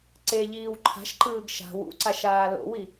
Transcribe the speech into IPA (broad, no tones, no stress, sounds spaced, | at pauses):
ǀ e ʎ iː w ǃʰ a̤ ʃ ǃ ɯː ɡ ʃ a̤ w ṵ ǀ a ʃ aː l o̰ w i